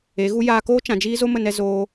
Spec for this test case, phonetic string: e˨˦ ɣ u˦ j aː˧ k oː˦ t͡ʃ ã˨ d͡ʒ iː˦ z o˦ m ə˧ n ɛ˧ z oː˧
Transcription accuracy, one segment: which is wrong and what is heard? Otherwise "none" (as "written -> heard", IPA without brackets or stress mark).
none